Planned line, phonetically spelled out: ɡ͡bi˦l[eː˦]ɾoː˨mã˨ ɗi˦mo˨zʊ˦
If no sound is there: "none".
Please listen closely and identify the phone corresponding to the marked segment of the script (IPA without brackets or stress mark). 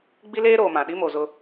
eː˦